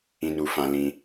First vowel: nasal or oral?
nasal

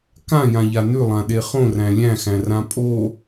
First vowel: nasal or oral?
nasal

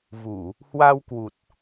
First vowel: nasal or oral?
oral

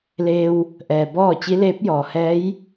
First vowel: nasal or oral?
oral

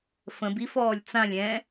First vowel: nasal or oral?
nasal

